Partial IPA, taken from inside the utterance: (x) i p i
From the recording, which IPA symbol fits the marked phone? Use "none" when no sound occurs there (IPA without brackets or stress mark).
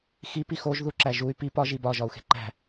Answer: x